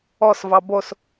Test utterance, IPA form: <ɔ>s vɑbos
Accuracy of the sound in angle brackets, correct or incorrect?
correct